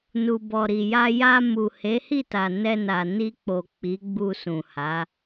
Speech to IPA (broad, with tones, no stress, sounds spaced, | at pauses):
n u˨ b ɔ˨ ɾ i˨ j a˧ j a˧ m u˨ h e˨˦ h i˦˨ t a˨ n ɛ˧ n a˨ n i˧ k͡p o˨ k͡p i˨˦ ɡ͡b u˧ s ũ˨ h a˨˦